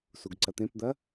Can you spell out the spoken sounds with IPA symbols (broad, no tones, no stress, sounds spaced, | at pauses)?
s u ɡ ǀ ɐ t̪ ẽ p d̪ ɐ